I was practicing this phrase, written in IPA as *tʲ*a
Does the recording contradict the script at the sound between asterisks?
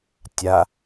no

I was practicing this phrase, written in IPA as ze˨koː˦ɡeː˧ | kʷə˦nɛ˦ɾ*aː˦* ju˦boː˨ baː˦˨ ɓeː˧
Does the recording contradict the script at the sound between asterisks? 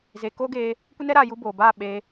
yes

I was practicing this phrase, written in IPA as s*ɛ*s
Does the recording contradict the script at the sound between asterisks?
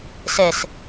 no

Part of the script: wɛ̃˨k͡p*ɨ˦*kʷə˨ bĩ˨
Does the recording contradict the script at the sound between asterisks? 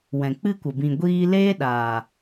no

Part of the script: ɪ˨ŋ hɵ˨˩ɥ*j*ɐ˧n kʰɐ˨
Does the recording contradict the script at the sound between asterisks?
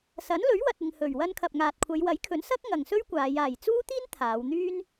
yes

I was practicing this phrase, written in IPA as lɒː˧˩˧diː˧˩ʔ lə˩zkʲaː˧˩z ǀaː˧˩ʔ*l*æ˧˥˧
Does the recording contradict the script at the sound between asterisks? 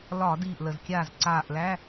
no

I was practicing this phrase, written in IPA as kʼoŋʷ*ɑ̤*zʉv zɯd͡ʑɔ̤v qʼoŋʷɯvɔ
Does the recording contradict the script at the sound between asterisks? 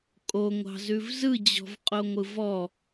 no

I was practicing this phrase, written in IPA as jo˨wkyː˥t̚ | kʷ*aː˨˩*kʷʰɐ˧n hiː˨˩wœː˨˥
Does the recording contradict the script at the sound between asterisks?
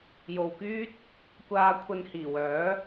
yes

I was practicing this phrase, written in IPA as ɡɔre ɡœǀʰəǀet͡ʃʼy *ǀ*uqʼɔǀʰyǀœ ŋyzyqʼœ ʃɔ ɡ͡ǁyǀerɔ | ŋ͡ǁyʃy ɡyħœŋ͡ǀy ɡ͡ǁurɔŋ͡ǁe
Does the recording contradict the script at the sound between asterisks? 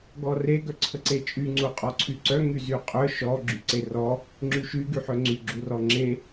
yes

